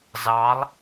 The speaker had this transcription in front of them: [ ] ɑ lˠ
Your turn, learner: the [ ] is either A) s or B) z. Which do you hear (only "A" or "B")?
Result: B